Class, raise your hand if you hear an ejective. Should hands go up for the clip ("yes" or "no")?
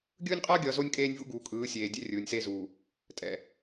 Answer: yes